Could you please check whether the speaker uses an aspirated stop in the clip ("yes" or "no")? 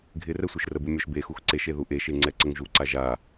no